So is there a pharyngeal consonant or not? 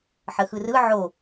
yes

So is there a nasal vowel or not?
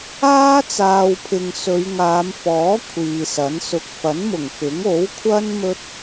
no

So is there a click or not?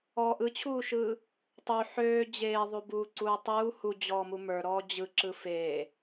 yes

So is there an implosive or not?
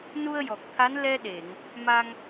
yes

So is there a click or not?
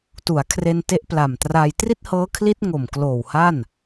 no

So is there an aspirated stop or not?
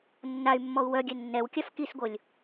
no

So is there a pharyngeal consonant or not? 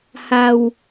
no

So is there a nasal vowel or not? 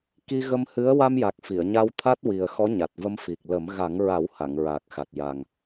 no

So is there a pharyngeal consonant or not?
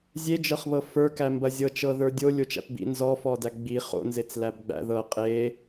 no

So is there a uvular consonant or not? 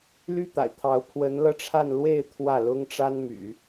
no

